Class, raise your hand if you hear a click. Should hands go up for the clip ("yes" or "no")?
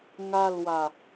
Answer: no